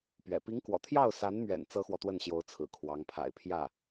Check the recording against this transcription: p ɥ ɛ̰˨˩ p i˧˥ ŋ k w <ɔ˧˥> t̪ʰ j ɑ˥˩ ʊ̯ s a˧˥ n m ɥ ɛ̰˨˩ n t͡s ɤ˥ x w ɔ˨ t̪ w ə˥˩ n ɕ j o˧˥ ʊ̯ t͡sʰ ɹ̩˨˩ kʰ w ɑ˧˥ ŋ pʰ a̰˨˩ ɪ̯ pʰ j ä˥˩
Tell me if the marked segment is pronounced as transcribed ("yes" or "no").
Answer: no